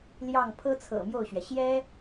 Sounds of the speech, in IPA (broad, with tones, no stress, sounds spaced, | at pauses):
l j ɑ˥˩ ŋ pʰ ɤ˥ t͡sʰ ɤ̰˨˩ m j o˥˩ ʊ̯ ɕ ɥ ɛ˩ ɕ j ɛ˥